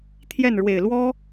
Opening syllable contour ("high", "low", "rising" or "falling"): falling